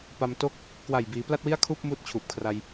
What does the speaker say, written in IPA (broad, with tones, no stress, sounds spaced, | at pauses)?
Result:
p a˧ m t o˦˥ k̚ | k w a˨˩ j b iː˩˦ p l a˥˩ t̚ w i˥˩ a̯ kʰ uː˥˩ p̚ m uː˥˩ t̚ t͡ɕʰ uː˨˩ p̚ kʰ r a˧ j